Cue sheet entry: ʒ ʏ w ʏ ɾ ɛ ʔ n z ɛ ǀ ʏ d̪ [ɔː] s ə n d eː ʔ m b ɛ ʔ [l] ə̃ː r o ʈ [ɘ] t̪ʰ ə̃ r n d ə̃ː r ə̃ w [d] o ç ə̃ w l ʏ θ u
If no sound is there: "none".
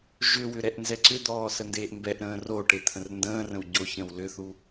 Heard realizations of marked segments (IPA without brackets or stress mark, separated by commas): ɔː, ɾ, e, ɟ